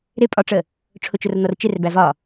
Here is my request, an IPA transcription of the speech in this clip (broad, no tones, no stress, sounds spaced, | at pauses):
ɾ ɪ pʼ ɒ ʈ͡ʂ ə | ʈ͡ʂʰ ʊ t͡ʃ ʊ r n̪ ɔ r t͡ʃ ɪ r b æ v ɒ